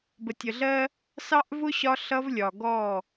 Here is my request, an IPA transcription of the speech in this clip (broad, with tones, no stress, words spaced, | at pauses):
bə˨tʲə˨ɮɜ˦ | sɑ˦ʔvʊ˦ ɕɒ˦ɬʌ˦vlʲɒ˨ ɡɔ˦˨